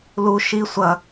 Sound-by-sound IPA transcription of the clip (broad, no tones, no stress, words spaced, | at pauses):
lu ʃi sʷɐ